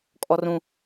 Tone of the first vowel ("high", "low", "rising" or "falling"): high